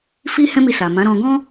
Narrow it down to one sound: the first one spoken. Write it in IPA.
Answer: f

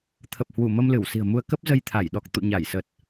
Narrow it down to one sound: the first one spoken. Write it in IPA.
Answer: t̪ʰ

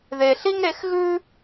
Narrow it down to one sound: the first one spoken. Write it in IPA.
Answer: ð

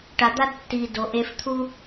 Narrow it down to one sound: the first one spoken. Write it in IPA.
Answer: ʈ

